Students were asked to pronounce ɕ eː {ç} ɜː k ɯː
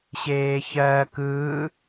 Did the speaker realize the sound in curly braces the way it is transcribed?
yes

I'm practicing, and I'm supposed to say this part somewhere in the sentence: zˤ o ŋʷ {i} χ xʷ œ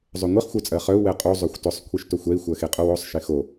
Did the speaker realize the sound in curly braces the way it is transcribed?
yes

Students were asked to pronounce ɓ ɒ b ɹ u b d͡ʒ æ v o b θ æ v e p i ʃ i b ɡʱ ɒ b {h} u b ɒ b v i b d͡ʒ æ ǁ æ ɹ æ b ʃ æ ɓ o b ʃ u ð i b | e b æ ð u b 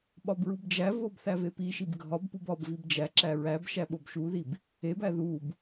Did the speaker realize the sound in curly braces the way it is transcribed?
no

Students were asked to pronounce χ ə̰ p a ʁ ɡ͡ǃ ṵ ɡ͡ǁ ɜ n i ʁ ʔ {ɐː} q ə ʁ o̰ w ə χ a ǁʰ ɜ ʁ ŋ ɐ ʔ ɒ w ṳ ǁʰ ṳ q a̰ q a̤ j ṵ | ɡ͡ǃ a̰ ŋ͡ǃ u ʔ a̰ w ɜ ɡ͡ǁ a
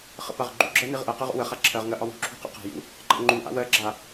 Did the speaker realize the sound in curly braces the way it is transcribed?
no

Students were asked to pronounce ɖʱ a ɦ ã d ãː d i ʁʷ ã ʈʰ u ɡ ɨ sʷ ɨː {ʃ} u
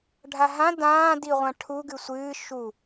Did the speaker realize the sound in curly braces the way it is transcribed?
yes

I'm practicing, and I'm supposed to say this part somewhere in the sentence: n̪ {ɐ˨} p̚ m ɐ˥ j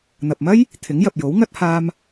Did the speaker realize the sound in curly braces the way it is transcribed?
yes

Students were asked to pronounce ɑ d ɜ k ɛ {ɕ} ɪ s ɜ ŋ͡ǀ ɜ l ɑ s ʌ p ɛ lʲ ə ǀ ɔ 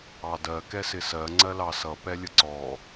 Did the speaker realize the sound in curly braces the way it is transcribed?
no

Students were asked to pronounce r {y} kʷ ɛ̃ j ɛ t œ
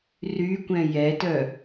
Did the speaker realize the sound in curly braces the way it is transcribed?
yes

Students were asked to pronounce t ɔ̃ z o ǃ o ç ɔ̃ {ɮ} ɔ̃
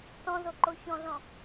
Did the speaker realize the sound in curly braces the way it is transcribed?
yes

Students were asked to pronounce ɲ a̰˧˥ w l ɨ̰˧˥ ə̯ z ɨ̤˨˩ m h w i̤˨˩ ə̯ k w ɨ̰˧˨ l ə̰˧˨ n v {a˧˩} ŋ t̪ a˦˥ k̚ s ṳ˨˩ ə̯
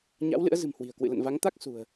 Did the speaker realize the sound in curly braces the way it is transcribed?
no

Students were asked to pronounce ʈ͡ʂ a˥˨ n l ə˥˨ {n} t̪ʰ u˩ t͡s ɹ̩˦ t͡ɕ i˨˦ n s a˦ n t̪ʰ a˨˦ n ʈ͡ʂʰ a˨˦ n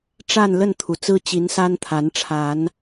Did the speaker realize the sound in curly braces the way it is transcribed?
yes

